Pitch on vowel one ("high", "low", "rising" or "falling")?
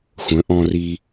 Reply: rising